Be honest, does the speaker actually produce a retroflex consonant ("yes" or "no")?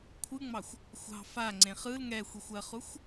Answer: no